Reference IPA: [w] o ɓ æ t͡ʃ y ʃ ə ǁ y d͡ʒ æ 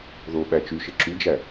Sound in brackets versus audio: incorrect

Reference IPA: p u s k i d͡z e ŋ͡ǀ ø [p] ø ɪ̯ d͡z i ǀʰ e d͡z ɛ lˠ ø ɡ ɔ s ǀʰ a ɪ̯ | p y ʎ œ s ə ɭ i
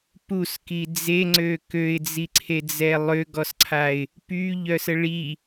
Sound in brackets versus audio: incorrect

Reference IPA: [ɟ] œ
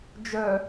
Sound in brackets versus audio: incorrect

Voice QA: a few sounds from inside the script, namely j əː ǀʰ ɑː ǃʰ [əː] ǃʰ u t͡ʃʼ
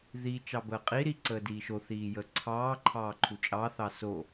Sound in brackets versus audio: incorrect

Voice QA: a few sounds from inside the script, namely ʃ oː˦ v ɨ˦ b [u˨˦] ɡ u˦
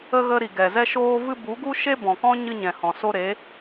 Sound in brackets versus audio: correct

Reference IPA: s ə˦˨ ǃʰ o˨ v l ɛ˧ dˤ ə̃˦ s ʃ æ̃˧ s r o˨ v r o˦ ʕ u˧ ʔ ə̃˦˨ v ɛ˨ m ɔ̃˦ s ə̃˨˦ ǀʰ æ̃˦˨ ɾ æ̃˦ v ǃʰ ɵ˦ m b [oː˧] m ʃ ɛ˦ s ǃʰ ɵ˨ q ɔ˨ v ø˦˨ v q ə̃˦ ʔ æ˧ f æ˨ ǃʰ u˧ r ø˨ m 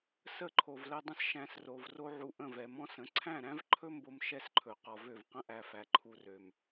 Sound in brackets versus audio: incorrect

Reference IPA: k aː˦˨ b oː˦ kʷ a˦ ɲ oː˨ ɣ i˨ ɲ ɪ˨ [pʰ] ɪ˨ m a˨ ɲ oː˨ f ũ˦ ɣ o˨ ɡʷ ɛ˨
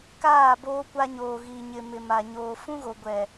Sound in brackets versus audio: incorrect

